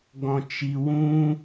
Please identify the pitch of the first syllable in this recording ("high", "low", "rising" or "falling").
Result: low